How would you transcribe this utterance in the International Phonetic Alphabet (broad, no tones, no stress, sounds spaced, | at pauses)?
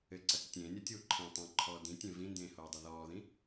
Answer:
ɘ ǀ ɐ k tʲ ẽː nʲ ɐ tʲ uː ǃʰ ẽ tˤ ẽ ǃʰ ɔː d ĩ tʲ ẽ v ĩ n d ẽː h oː dˤ ɐ ð ɔː ð ĩ